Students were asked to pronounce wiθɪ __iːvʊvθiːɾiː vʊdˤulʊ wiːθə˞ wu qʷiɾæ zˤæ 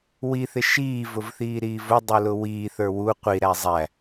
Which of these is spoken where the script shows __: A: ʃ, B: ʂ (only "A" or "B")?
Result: A